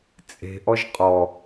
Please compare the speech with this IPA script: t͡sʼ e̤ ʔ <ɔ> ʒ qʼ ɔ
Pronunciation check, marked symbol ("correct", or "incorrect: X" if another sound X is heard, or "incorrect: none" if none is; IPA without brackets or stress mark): correct